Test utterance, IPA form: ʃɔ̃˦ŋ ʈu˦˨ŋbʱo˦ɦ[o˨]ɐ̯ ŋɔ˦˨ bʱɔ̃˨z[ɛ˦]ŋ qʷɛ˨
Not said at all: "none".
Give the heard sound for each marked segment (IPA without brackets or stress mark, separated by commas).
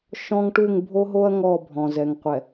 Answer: o˦, ɛ˨